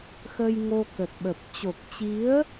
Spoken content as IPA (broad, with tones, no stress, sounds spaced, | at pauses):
x ə˧ j ŋ o˧ k ə˨˩ t̚ ɓ ə˨˩ p̚ t͡ɕ o˨˩ k̚ t͡ɕ i˨˦ ə̯